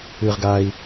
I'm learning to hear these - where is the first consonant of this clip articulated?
uvula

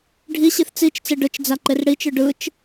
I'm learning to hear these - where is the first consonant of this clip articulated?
retroflex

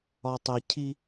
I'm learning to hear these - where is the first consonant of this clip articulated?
tongue tip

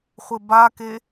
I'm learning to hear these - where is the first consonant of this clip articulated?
uvula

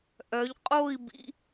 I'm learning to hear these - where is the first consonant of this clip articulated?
throat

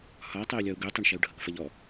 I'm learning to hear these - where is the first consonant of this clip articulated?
throat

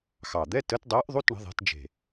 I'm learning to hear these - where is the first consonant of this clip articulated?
velum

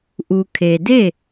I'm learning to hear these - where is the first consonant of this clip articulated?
throat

